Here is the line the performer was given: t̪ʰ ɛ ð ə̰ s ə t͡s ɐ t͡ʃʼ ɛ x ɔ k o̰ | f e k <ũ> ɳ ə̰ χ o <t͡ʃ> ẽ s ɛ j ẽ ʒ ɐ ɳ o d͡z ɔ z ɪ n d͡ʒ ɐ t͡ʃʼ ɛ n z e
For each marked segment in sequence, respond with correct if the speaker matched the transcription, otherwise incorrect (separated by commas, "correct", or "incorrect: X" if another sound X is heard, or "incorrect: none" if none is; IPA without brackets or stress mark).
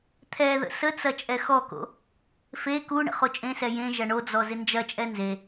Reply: incorrect: u, incorrect: t͡ʃʼ